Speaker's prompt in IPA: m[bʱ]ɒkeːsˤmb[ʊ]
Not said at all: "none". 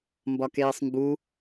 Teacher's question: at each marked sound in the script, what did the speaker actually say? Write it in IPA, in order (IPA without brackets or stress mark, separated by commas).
b, u